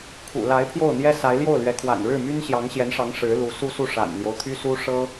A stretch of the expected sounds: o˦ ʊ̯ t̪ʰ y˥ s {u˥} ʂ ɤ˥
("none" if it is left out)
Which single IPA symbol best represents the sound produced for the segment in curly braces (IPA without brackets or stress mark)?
u˥